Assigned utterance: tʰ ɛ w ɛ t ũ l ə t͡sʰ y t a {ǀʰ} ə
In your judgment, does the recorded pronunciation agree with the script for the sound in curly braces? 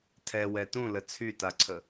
yes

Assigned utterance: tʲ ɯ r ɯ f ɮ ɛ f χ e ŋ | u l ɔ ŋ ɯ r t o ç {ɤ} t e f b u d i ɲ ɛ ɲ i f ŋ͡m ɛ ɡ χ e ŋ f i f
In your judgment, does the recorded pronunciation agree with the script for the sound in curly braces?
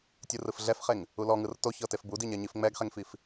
yes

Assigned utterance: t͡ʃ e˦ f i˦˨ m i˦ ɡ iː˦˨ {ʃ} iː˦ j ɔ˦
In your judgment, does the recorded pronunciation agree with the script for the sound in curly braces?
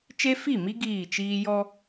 no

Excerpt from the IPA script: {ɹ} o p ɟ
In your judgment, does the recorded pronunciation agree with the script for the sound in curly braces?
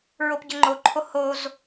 yes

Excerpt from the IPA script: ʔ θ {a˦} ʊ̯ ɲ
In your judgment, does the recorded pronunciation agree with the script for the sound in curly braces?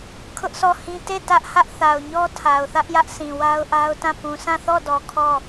no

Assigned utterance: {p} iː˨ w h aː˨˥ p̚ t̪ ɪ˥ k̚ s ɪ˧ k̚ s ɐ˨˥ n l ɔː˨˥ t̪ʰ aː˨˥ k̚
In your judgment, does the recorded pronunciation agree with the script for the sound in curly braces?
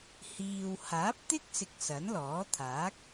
no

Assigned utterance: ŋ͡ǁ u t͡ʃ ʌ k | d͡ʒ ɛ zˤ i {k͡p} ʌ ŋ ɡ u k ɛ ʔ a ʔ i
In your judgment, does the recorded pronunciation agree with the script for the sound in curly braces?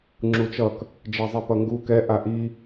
no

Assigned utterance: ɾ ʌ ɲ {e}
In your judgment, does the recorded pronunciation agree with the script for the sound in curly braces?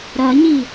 no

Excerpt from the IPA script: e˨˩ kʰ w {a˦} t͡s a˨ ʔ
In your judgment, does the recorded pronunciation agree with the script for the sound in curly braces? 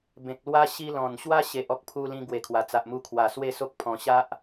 no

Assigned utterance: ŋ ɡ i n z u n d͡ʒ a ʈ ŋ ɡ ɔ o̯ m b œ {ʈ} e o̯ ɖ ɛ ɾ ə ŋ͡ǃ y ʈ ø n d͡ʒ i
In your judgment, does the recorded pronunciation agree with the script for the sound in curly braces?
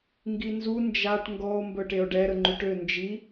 yes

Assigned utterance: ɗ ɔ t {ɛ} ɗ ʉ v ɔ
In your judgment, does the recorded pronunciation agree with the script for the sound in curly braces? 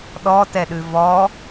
yes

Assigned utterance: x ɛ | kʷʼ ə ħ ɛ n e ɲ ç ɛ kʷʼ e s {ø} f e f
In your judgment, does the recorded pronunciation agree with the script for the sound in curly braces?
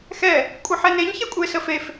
no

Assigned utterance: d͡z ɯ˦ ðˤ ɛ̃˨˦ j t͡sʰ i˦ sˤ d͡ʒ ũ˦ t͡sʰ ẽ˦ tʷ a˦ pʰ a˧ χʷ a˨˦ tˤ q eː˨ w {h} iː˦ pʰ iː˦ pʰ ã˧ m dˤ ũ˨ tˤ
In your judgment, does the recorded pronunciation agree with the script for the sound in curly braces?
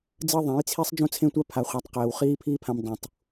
no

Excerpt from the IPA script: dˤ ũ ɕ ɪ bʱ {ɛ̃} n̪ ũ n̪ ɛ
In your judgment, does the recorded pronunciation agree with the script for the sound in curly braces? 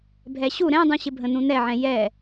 no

